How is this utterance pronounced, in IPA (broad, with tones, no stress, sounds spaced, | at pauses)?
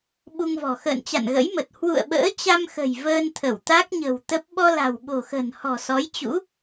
ɓ u˧ ŋ v ɔ̤˨˩ x ə̰ː˧˨ n t͡ɕ a̰˧˨ n ɣ ə̰˧˥ j m ə˨˩ t̚ h w ṵ˧˨ ə̯ ɓ ə̰ː˧˥ t͡ɕ a˧ m x ə̤˨˩ j v əː˧ n t̪ʰ ə˧˩ w t̪ a˦˥ k̚ ɲ ə̤˨˩ w t̪ ə˦˥ p̚ ɓ ɔ˧ l a̤˨˩ w ɓ o̤˨˩ x ə̤˨˩ n h ɔ̤˨˩ s ɔ˨˦ j t͡ɕ ṵ˧˥